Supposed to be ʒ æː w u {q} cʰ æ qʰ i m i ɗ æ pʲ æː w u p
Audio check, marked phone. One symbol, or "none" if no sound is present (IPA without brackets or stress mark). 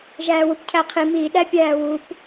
p